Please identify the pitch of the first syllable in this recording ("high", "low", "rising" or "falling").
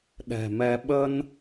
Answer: low